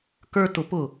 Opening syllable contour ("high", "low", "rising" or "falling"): high